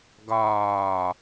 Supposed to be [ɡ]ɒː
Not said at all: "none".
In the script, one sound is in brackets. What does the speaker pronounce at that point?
ɡ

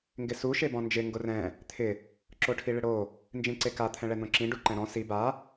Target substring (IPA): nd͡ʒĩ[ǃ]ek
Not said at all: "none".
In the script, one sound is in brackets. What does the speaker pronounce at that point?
ǀ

